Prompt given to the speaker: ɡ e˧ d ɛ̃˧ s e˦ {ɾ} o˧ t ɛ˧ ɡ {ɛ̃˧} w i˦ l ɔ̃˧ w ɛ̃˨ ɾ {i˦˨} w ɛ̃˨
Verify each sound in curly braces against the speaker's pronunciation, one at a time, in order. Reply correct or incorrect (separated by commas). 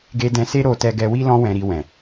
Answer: correct, incorrect, incorrect